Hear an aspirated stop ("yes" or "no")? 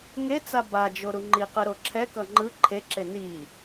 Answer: yes